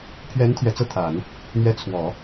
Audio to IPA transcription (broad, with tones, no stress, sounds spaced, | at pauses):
pʰ ɥ ɛ˧˥ n t̪ʰ ɥ ɛ˨˩ t͡s ɤ˥˩ t̪ʰ a˨˩˦ n | n̪ ɥ ɛ˧˥ t͡sʰ w ɔ˨˩˦